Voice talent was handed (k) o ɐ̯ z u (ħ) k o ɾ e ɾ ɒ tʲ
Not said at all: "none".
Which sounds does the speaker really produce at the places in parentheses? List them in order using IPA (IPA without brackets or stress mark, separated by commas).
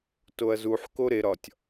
t, ħ